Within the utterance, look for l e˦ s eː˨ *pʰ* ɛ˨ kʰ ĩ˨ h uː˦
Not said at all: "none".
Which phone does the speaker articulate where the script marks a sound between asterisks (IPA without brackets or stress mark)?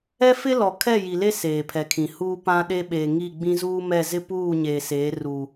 pʰ